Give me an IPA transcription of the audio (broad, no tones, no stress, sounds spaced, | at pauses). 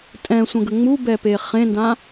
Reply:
tʼ ɛ̃ sʷ ə̃ ɡ ə ŋ͡m u b ɛ p e χ ẽ n d ã